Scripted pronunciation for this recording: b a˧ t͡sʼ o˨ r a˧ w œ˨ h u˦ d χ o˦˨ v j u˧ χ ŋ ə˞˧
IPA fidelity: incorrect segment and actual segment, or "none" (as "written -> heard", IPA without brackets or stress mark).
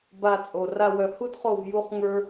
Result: none